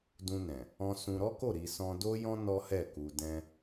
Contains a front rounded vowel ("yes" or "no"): no